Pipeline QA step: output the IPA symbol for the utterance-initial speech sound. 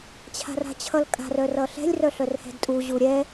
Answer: t͡ɕʰ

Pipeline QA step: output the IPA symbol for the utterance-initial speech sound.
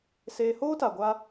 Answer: s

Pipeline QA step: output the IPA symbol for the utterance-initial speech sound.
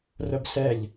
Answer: r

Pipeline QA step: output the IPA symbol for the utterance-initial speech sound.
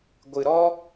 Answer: ɡʷ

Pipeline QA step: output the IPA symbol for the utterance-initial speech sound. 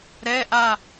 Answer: ɾ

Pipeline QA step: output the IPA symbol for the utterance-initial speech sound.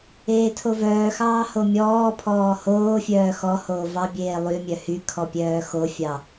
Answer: eː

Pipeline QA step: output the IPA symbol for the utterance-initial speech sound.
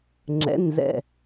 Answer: ŋ͡ǁ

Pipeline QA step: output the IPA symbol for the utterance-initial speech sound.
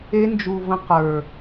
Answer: e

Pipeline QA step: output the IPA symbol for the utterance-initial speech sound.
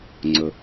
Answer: ŋ͡ǀ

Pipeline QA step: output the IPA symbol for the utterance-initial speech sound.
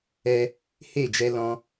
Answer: ɛ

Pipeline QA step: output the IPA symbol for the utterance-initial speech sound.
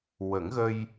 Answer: w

